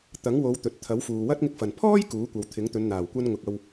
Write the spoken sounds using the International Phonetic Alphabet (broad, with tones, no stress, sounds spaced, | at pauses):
t̪ ɐ˨˥ ŋ w o˨˧ w t̪ ɵ˨ t̚ t̪ʰ ɐ˨˥ w f uː˨ w ɐ˥ t̚ ŋ ɪ˧ k̚ f ɐ˨˩ n pʰ ɔː˥ j k uː˨˥ kʷ ɐ˨ w t̪ʰ ɪ˨˥ ŋ t̪ ɵ˨˧ n n̪ aː˨˩ w kʷ ɐ˧ n ŋ ʊ˨ k̚ ɐ˧ w